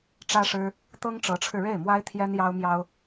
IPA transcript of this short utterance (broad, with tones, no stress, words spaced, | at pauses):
ʈ͡ʂä˥ʂɻ̩˥ | t̪ɤ˥ŋʈ͡ʂɤ˧˥ʈ͡ʂʰɻ̩˧ ɻe˥˩ɪ̯mwa˥ɪ̯ t̪ʰjɛ˥njɑ˥ʊ̯mjɑ˥ʊ̯